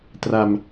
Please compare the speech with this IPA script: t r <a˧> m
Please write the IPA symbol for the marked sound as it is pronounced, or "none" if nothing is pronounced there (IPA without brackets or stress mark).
a˧